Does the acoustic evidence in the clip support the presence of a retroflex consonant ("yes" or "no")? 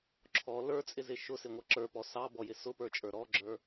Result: no